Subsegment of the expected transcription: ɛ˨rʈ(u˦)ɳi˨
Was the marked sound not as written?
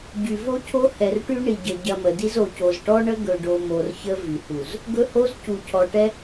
yes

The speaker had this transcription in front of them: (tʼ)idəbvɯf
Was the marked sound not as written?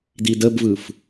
yes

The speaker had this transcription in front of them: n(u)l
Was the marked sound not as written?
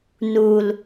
no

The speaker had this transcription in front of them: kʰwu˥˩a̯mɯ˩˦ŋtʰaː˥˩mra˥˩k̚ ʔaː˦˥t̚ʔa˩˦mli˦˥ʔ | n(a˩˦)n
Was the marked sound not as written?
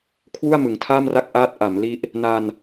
yes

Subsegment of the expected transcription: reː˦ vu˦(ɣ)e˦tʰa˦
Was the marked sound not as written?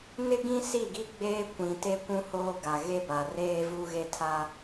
no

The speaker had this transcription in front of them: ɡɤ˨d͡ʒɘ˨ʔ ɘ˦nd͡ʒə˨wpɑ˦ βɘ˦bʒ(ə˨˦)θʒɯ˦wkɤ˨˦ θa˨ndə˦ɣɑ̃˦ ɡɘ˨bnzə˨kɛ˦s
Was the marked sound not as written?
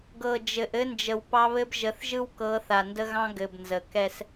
no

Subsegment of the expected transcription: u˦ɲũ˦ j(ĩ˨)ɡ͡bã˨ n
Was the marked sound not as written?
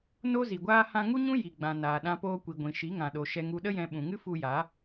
yes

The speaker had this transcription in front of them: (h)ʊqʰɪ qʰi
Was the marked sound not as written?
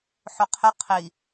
yes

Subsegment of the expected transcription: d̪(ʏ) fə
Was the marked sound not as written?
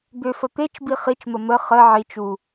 no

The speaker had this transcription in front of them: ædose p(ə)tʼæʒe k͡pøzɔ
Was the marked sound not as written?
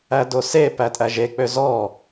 yes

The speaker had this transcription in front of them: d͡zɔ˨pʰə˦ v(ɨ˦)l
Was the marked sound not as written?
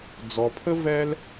yes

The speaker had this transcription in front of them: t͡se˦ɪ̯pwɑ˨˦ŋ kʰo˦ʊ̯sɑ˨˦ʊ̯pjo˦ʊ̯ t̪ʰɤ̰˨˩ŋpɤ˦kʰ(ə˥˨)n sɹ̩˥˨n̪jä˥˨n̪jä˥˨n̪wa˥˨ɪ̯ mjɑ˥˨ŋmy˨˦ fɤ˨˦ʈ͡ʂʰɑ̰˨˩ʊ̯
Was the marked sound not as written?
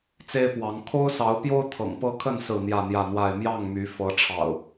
no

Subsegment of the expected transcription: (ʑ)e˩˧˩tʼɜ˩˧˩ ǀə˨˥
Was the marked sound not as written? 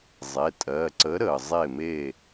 yes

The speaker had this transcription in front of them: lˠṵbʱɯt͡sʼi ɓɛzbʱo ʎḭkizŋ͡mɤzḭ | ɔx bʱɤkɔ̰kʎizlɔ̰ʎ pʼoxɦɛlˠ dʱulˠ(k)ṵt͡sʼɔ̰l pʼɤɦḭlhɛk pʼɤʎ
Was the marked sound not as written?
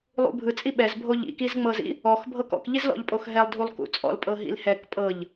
no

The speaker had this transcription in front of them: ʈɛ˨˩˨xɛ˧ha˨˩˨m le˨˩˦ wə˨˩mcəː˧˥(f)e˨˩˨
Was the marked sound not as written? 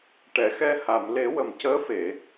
no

